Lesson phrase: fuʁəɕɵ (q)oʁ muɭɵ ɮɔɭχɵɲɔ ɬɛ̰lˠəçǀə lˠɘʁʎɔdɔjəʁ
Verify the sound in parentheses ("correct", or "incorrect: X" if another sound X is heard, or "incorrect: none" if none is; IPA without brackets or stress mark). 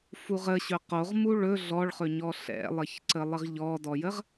correct